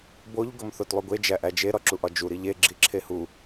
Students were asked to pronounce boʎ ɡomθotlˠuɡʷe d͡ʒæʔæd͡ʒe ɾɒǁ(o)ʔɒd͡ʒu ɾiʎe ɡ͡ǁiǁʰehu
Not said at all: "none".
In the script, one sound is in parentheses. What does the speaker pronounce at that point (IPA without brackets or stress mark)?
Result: u